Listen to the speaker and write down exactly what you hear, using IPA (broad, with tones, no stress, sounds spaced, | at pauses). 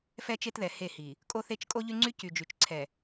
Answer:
f ɛ˦ t͡ʃ e˦ t ð ɛ˨ h e˦˨ h i˨ | kʼ o˦ θ e˦ t͡ʃ kʼ o˦ ʎ y˦ ŋ͡ǀ y˦ c y˨ d͡ʒ y˨ t͡ʃ ǀʰ ɛ˨